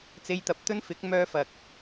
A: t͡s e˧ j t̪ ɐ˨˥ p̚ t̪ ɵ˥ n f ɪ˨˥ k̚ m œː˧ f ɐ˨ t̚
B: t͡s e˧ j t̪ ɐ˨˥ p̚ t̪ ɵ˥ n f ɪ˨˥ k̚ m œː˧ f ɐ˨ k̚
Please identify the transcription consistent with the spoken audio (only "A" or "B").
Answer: B